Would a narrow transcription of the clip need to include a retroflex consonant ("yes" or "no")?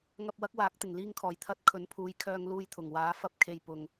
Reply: no